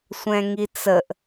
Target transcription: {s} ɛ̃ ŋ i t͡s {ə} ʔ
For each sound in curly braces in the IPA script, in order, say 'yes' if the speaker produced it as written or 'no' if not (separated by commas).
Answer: no, yes